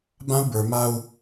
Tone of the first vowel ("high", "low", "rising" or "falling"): high